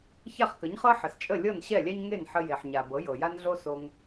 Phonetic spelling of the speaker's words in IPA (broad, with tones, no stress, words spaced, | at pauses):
ça˥˩χkə˩˥ɲχɤ˥ ħə˩st͡ʃʼə˥˩lʲɤ˥˩n ɕɛ˥˩lʲɛ˥ɲ ŋe˥˩nħə˧ je˩ħɲa˩ bɤ˩˥jɤ˩ja˥nɮo˥ so˧ŋ